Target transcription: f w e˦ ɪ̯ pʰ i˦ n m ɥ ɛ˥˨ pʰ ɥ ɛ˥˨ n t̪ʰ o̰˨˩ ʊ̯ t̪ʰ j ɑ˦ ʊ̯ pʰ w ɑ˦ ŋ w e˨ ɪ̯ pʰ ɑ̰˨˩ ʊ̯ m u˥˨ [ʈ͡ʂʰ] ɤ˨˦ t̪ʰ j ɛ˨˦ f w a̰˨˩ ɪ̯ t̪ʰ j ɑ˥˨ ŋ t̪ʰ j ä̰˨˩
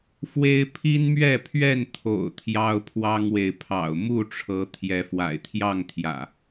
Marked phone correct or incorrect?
correct